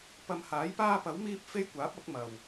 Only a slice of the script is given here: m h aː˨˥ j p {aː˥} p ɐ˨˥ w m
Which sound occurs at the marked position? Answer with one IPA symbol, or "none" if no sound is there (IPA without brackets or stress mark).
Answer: aː˥